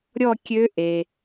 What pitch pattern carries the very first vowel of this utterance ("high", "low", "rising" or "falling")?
falling